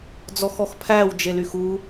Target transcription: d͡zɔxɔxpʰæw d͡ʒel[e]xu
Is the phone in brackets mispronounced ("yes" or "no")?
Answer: yes